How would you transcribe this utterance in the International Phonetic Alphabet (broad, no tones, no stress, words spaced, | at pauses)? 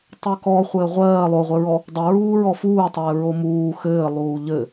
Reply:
tˤekɔ χʷɘːʁʷɜː lˠoʁʷɘɹɔ | dˤɘɹuː ɹɔfuːtˤɘːɹo muː xɘːlˠuː ʎɘ